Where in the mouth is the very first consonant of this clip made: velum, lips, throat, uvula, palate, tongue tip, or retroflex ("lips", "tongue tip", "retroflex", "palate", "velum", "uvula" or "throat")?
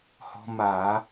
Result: throat